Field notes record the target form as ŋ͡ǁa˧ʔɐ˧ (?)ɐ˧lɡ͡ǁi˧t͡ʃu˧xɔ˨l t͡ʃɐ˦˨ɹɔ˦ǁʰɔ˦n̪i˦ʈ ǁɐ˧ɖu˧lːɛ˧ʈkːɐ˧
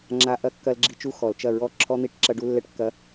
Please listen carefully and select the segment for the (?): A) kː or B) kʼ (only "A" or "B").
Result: A